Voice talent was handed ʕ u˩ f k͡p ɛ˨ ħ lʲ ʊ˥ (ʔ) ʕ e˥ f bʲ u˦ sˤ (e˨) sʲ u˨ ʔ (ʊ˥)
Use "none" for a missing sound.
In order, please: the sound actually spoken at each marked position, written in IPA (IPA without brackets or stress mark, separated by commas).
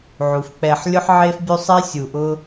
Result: ħ, e˥, ʊ˥